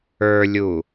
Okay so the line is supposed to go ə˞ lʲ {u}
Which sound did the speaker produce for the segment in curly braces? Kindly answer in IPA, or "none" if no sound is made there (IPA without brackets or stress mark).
u